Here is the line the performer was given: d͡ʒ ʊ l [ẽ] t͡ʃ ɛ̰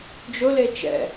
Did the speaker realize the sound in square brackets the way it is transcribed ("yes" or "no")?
no